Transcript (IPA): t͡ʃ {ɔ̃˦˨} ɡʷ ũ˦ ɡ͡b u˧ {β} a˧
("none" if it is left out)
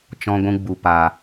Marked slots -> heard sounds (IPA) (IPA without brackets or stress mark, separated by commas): ɔ̃˦, p